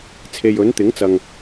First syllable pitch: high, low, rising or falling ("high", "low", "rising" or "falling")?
low